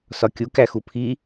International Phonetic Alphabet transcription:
sɒkʲu kæxupʰi

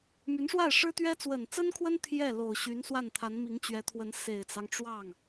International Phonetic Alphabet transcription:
my˧˥nʂwa˥˩ɪ̯ʂɻ̩˥t̪ɥɛ˥ t͡swə˨˩nt͡sə˥nkʰwə˥n t̪ʰjɛ˥˩ lo˨˩ʊ̯ɕy˧˥nswa˥˩n t̪ʰa˧˥nmi˧˥ŋt͡ɕɥɛ˧˥t̪ʰwə˧˥n se˨˩ɪ̯t͡sɑ˦ŋʈ͡ʂwɑ˥˩ŋ

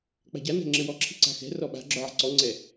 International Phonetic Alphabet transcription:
k͡pa̤ɟanɛ̤ ŋ͡ǁɘwɔǁʰi̤ ǀa̤xɛ̤rɔ ɓa̤ ɡ͡ǁɔʕa̤ǀɔŋ͡ǀɛ

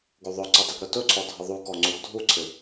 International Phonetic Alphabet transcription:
ɡuðˤɵǀɘ dˤɪɡɾɵtɵǀʰɔ dʱəðˤukɔ ŋ͡ǀuɡdʱuǀʰɪ

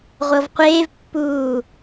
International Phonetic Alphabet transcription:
ʁʷɤvqʷeːvpːuː

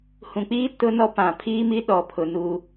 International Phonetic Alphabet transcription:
hũ˨k͡piː˦ tʊ˦nɔ˦pã˨ pʰiː˦mi˦ ɗɔ˨pʰʊ˨ nuː˦

